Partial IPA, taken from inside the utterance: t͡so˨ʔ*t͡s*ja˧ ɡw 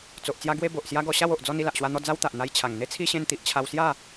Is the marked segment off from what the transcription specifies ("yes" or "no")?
no